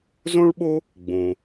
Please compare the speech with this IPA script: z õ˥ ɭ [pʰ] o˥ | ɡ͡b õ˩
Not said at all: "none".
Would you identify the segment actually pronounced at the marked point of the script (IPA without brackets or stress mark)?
ɓ